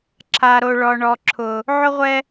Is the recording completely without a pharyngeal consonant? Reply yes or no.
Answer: no